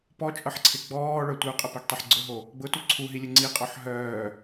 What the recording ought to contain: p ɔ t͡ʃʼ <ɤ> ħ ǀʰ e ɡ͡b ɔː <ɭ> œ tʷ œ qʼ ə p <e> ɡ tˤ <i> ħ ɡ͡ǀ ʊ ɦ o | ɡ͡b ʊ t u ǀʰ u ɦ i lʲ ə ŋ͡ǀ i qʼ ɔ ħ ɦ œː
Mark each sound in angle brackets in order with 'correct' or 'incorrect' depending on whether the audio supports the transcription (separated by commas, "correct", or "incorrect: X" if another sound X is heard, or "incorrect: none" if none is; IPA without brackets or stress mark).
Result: correct, correct, correct, correct